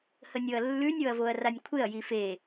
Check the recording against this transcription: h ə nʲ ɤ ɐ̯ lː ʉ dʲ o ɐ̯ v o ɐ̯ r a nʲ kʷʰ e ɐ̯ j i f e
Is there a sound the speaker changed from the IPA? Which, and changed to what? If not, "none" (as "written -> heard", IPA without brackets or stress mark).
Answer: dʲ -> nʲ